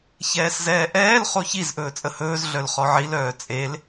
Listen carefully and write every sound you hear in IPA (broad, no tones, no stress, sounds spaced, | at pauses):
ç ɛː s z ɛː ʔ ɛː l χ o ç i z ʔ ɵː t͡sʼ ə h ɵː z ɮ œ l χ ɔ ʕ i l œː t͡sʼ e l